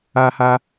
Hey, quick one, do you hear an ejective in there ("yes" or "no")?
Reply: no